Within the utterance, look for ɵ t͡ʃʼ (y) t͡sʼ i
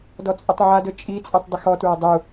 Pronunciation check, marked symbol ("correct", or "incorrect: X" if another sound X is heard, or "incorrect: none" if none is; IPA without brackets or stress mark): incorrect: i